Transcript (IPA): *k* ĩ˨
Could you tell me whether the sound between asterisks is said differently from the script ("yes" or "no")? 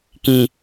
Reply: no